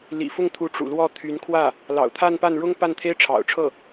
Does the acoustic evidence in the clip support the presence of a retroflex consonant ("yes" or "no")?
yes